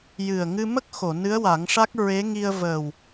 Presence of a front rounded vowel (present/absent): absent